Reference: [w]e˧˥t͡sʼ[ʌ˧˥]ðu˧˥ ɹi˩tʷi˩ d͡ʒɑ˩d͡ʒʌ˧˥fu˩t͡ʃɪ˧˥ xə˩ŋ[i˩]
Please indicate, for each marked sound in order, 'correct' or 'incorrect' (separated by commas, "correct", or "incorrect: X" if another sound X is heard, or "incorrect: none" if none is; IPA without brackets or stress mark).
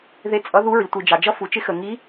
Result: incorrect: ð, correct, incorrect: i˧˥